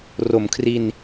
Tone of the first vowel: low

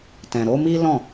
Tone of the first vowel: low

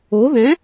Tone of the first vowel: rising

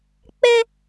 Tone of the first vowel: high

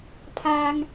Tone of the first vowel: low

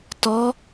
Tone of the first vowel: rising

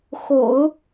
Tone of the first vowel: low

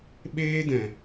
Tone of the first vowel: high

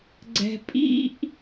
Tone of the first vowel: low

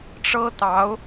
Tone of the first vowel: high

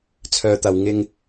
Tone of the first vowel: low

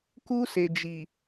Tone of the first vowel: high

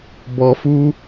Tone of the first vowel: high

